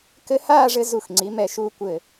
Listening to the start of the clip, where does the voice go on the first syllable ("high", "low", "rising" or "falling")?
high